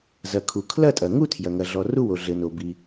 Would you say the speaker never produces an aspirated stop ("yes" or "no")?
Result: no